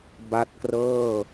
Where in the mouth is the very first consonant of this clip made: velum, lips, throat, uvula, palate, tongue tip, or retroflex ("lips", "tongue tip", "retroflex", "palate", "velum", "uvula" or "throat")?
lips